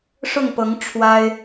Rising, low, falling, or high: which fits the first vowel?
falling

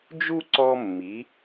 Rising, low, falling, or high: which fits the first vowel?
high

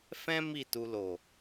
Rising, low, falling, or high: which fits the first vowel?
high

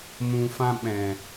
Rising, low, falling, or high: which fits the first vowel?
low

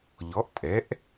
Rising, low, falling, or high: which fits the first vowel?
rising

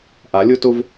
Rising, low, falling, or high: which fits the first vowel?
rising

